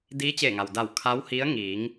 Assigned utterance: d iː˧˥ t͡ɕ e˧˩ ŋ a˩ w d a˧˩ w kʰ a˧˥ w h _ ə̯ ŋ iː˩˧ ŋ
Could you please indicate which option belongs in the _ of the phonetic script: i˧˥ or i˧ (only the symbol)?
i˧˥